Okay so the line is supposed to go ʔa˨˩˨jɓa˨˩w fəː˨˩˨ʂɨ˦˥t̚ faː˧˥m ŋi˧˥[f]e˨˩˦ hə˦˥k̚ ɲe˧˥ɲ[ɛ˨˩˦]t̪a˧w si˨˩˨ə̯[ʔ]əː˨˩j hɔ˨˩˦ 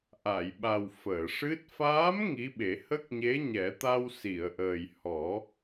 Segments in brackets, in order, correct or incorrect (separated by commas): incorrect, correct, correct